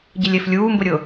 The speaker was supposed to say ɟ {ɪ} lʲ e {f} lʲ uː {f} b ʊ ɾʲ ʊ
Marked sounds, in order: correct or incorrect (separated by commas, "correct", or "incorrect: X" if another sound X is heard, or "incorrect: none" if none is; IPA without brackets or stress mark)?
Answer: correct, correct, incorrect: m